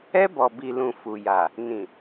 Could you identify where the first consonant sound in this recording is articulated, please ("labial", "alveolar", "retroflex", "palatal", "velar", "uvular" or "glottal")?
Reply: labial